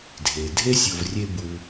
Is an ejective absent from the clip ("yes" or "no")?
yes